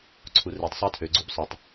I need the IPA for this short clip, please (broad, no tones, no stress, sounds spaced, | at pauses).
ǀʰ u r e tˤ sˤ æ tʰ ø ɡ͡ǀ u b sˤ ø tˤ